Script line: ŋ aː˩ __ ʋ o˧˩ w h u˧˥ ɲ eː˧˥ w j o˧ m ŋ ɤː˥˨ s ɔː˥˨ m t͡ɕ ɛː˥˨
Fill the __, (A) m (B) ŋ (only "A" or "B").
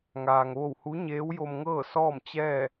B